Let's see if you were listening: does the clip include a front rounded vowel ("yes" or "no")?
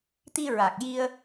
no